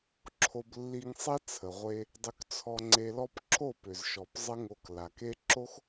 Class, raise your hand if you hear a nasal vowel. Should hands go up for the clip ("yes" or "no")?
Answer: no